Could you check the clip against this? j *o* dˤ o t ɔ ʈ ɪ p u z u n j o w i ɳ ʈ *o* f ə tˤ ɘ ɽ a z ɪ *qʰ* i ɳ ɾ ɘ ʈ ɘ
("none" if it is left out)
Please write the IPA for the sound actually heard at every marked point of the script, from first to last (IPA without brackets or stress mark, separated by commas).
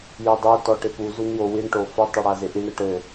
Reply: o, o, ʔ